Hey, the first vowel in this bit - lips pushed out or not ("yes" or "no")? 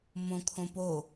yes